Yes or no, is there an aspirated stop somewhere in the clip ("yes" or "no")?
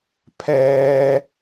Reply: yes